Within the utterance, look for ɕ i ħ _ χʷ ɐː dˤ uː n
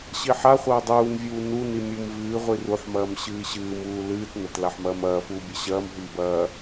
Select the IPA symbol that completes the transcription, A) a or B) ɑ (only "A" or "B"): A